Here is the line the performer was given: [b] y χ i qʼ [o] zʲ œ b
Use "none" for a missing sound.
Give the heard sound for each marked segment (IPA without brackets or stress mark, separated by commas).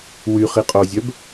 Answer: w, o